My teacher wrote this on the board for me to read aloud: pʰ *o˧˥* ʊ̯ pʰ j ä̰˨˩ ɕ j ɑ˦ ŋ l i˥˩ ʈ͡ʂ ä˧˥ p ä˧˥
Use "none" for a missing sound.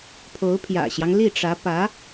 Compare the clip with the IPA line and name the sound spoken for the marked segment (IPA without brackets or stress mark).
o˧˥